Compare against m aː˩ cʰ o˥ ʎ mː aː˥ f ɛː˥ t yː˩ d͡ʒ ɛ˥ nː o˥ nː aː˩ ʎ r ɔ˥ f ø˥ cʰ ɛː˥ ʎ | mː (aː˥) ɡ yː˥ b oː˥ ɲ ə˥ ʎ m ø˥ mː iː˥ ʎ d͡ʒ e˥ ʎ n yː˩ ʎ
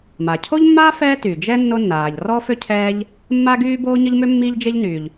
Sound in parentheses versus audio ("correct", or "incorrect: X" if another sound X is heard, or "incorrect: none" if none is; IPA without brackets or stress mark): incorrect: a˥